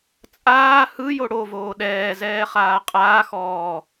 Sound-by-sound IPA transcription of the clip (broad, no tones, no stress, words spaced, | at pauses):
t͡sʼaː hɯjo ɽovoː ɗɛːzɛːχaː qʼaːxɔː